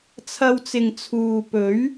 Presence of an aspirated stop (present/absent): present